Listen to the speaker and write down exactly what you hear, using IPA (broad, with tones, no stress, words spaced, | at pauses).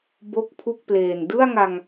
bo˥˩k̚pʰu˥˩k̚pleː˨˩n dɯ˥˩a̯ŋa˧ŋ